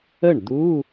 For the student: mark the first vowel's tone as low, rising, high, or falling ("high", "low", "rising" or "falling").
falling